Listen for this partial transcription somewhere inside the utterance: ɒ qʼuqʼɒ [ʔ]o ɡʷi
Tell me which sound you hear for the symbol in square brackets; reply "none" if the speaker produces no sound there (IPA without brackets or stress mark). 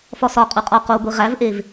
q